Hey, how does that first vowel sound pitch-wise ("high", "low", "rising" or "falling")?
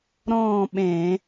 falling